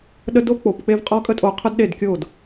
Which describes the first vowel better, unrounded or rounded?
unrounded